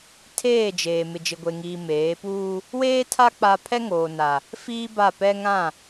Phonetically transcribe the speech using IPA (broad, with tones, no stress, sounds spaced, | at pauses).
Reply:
tʰ eː˦˨ d͡ʒ eː˨ m ɪ˨ d͡ʒ ɪ˨ ɡʷ e˨ ŋ iː˨ m eː˨˦ p uː˦ | w eː˦ tʰ a˦ k͡p a˦ pʰ ɛ˦ ŋ oː˨ n a˨ | f iː˦ b a˦˨ p ɛ˦ ŋ ã˦˨